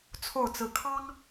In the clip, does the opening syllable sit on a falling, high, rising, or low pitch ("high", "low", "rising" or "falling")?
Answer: falling